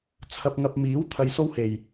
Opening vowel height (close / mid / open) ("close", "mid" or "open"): open